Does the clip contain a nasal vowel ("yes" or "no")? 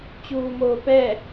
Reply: no